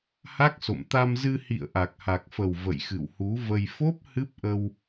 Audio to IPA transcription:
h a˦˥ k̚ s o̰˧˨ m t̪ a˧ m z ɨ˧ h ḭ˧˨ ə̯ ʔ a˨˩ k̚ h a˨˩ k̚ f ə˨˩ w v ə̰˧˨ j x ɨ̰˧˨ w h u˨˦ v ə˧ j f o˦˥ p̚ h ɨ˦˥ p̚ ʔ ə˧ w

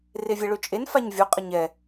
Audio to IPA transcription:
r e vʲ ɛ ɭ ø t͡ʃʼ e n f a ɲ vʲ o qʼ ə ɲ ɛ

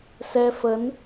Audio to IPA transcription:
s ɛ˧ f ə˨˦ n

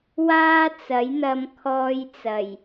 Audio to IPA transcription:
w aː˥ t͡s ɐ˨˥ j n̪ ɐ˧ m kʰ ɔː˧ j t͡s ɐ˨˩ j

